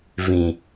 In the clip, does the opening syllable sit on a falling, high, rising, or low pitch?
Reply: low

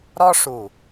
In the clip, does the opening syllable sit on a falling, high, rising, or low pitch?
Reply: high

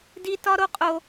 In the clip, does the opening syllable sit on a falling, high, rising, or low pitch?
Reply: high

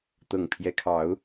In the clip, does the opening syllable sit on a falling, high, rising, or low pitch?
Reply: low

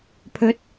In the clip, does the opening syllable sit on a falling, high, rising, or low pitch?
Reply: rising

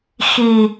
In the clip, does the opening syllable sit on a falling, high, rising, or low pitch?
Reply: low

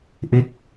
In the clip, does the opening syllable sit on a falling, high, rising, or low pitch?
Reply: rising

